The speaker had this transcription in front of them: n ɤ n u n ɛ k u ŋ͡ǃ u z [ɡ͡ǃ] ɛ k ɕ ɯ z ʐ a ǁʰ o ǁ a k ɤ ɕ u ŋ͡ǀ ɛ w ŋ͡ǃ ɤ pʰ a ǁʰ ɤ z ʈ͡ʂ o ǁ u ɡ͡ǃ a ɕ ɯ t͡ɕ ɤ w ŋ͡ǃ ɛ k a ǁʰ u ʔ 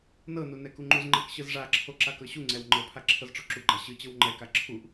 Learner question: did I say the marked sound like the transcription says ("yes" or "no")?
no